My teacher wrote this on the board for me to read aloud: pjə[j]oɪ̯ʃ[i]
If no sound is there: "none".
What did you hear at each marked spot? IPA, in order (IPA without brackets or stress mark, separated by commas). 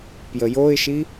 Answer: j, i